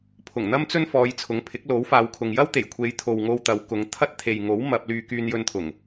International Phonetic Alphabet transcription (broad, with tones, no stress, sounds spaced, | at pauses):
pʰ ʊ˨˩ ŋ n̪ ɐ˥ m t͡s ɵ˥ n f ɔː˨˧ j t͡sʰ ʊ˨˥ ŋ pʰ ɪ˨˥ k̚ l o˨˥ w f aː˨˧ w kʰ ʊ˨ ŋ j ɐ˥ w t̪ e˨˩ j kʷʰ e˨˧ j t̪ʰ o˨ w ŋ o˧ w t̪ ɐ˨˧ w k ʊ˨˧ ŋ t̪ʰ ɐ˥ t̚ t̪ʰ e˨ j ŋ o˨˥ w m ɐ˧ p̚ l yː˧ k yː˧ n j ɵ˧ n t̪ʰ ʊ˨˩ ŋ